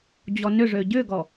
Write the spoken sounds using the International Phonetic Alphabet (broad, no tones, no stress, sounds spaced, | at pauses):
d͡ʑ ɔ n ʏ ʐ ø ɟ ʏ ɡ ɔ